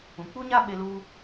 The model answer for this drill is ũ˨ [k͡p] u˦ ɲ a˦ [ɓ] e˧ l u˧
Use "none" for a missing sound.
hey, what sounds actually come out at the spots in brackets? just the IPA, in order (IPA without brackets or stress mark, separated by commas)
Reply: k͡p, ɓ